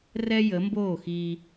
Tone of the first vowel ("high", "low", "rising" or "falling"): high